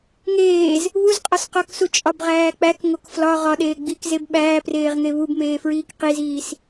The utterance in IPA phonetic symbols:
ŋ eː z | β u z qʼ ɒ s q ɒ k s u t͡ʃʼ ɒ b ʁ æː k͡p æ k ŋ o k f l ɒ ʁ ɒ ɗ eː ɡ͡b i k z e b ɓ æː p r eː ʁ ŋ e β u b m eː f ɹ iː k q i z iː s

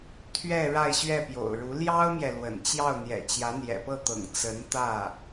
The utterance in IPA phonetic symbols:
t̪ʰ ɥ ɛ˥˧ ɻ a˥˧ ɪ̯ ɕ ɥ ɛ˥˩ p j o̰˨˩ ʊ̯ ɻ u˧˥ l j ɑ˥ ʊ̯ m j ɛ˨ l w ə̰˨˩ n t͡ɕ j ɑ˥˩ ʊ̯ n̪ j ɛ̰˨˩ t͡ɕ j ä˧˥ n̪ j ɛ̰˨˩ p ɤ˥˩ t̪ ɤ̰˨˩ ŋ t͡s ə˧˥ n t̪ ä˥˩

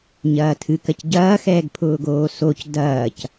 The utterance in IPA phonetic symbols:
ɲ ɐː tʰ ɨ k ɐ c ɟ ɐː x ɛː ɡ pʰ ʊː ɡ oː s o c d ɐː c

